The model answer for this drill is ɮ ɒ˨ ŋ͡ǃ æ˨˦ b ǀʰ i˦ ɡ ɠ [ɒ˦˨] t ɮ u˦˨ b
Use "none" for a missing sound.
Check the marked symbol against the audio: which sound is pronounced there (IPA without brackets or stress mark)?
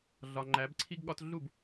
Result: ɒ˦